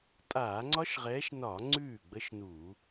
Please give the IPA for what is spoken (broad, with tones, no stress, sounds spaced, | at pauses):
tʼ aː˧˩˧ ŋ͡ǀ ɒ˦˥ ʃ ʁ ɛː˨˦ ʃ n ɒ˧˩˧ ŋ͡ǀ ʉː˥˩ ɡ͡b ə˦˥ ʃ n u˧˩˧